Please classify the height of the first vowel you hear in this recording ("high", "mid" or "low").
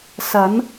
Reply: low